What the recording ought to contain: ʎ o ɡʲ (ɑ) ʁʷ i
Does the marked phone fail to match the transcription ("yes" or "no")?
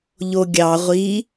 no